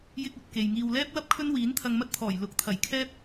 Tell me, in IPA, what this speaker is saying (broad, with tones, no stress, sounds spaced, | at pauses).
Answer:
j ɪ˥ k̚ ɵ˧ t̚ k e˨ j ŋ iː˨ w l ɛː˥ p̚ w ɐ˥ p̚ kʰ ɵ˥ n w iː˨˥ n t̪ʰ ɐ˧ ŋ m ɐ˥ t̚ t̪ʰ ɔː˨˩ j l ʊ˨˥ k̚ t̪ʰ ɐ˨˩ j kʰ ɛː˥ p̚